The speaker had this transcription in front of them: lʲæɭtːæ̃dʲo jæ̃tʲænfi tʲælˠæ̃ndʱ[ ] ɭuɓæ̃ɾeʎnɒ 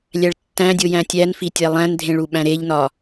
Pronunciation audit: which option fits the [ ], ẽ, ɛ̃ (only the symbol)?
ẽ